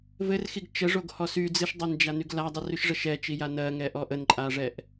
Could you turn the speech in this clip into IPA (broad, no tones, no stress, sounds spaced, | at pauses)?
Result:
v ɘ r x i ɡ t͡ʃ ə ʐ o ɡ h ɔ s y d͡z ɨ ʃ dˤ ɜ n d͡ʒ a n y ɡ l a dˤ i r y ʃ ʐ ə ʃ ɛ t͡ʃ i j a n ɜ ŋ ɛ ʔ ɔ ʔ ə n ǃʼ a ʐ ɛ ʔ